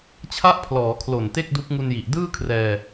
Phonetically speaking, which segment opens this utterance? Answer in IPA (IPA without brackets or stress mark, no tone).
t͡ɕʰ